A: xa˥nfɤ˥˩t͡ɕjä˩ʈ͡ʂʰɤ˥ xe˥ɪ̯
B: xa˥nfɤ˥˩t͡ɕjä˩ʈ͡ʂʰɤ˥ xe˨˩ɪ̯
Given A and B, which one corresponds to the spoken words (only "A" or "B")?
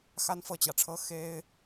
A